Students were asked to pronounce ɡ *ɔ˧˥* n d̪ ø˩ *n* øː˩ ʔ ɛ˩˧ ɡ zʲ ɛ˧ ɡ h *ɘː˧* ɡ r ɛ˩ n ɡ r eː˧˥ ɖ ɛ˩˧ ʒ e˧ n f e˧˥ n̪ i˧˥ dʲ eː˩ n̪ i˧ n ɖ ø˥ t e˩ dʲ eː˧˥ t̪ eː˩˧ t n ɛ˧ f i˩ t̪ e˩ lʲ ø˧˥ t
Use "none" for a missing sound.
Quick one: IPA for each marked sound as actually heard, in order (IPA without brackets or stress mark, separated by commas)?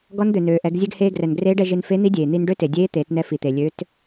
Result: ɔ˧˥, n, eː˧